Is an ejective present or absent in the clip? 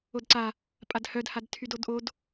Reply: present